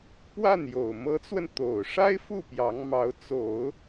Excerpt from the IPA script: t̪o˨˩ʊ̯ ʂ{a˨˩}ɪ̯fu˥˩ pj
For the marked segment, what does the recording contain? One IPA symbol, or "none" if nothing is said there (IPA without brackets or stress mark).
a˥